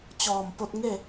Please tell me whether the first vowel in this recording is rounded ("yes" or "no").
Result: yes